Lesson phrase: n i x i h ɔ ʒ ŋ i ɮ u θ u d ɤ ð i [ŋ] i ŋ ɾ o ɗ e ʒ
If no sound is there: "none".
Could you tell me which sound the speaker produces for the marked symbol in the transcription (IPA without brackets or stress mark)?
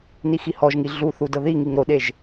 ŋ